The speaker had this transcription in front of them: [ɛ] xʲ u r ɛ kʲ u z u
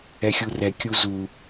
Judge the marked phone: correct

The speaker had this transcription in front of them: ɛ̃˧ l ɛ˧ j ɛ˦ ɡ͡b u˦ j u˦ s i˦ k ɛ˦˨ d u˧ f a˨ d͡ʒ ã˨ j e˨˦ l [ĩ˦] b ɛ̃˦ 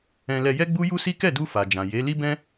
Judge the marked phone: incorrect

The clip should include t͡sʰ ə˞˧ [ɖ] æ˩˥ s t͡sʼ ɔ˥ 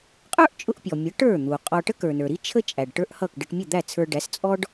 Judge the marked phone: correct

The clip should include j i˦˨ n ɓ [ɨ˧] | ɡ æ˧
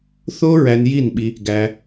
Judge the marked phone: incorrect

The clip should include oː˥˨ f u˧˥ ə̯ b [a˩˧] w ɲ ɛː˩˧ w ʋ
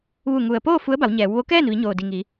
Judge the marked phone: correct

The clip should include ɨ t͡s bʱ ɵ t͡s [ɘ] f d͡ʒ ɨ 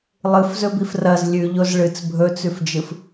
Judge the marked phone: incorrect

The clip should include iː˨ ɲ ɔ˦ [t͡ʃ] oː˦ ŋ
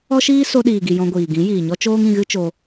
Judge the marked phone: correct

